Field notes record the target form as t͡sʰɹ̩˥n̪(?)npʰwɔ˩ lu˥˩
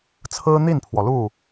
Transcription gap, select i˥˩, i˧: i˥˩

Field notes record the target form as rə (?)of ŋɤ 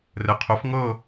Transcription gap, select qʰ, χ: qʰ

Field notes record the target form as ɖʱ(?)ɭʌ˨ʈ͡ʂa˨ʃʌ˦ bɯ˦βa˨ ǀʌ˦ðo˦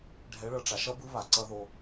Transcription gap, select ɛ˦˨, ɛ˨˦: ɛ˨˦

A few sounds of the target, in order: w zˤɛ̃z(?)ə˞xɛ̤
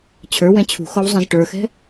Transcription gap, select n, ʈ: ʈ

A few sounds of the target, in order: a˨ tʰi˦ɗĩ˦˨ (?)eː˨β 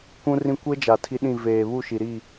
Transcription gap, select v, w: v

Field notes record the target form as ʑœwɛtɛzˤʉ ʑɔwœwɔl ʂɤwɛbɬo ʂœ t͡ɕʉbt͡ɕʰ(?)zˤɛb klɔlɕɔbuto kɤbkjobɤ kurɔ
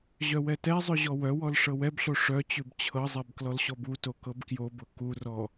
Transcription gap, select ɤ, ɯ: ɤ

